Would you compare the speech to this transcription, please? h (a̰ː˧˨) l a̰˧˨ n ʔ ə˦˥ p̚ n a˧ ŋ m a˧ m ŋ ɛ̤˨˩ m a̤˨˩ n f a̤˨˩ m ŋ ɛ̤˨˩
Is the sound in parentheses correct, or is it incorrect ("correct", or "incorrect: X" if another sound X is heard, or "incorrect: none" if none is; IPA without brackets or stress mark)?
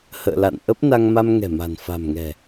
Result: incorrect: ə̰ː˧˨